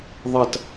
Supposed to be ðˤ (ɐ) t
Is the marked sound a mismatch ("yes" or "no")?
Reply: no